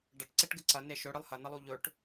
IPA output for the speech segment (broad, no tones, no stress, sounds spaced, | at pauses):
ɖ ɐ ʈ ǀ e ʈ ɡ ɨ ǀ ɐ n e ʃ ɵ ɽ ɨ lˠ h ɐ n ɐ lˠ u ʎ ɵ ʈ